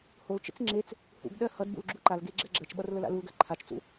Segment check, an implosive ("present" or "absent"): present